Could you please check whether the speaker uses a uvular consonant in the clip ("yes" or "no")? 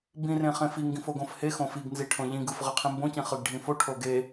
yes